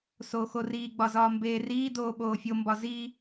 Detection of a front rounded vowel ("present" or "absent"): absent